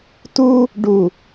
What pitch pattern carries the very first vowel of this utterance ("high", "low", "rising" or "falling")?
high